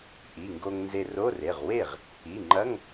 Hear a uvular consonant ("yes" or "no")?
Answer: yes